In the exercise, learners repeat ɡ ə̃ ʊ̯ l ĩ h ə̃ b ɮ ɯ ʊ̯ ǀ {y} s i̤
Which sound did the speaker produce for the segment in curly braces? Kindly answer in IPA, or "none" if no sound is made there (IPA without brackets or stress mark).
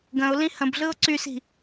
y